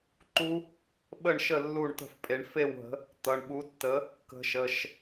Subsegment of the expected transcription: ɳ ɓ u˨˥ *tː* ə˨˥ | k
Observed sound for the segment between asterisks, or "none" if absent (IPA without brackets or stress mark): tː